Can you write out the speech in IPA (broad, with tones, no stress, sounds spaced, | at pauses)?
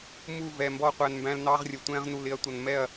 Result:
m u˦˨ v ɛ˨ m b ɔ˧ qʷ æ˧ n m b æ̃˦ l n ɑ˦ ʁ rʲ ə˨ tʷ ɛ̃˧ ʁ n u˨ l ɪ˧ ɐ̯ tʷ ʌ˨ n m ɛ˦˨ ɐ̯